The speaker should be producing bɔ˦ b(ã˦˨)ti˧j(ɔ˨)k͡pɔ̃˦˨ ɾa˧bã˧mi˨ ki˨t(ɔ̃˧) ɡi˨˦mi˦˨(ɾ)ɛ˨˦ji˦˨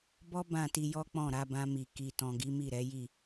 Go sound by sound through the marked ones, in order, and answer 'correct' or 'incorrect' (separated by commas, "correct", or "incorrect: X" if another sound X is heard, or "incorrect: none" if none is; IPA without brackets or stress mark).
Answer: correct, incorrect: ɔ˦, incorrect: ɔ̃˨, correct